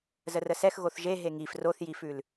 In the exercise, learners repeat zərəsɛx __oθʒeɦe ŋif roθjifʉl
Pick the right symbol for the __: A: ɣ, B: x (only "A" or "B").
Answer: A